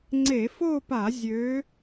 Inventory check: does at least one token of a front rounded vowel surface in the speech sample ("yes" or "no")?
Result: yes